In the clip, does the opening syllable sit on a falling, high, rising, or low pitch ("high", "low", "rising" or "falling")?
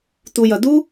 high